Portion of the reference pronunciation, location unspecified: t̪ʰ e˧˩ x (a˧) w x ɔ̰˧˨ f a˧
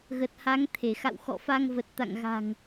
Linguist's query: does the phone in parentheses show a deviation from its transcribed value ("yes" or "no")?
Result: yes